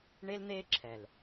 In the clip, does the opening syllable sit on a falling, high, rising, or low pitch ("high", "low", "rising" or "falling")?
high